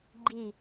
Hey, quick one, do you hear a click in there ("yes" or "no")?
yes